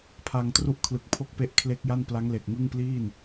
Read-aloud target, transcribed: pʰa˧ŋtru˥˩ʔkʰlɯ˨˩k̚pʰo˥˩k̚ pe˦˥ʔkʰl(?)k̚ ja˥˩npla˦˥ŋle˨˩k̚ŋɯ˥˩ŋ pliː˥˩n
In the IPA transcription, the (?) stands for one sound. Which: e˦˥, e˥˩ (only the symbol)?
e˦˥